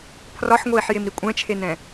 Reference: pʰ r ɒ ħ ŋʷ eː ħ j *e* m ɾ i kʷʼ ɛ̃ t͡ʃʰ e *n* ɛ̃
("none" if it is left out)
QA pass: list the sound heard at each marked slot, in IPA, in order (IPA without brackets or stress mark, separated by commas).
e, n